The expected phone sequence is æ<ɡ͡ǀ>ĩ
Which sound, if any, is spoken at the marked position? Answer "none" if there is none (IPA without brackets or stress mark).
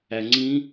ŋ͡ǀ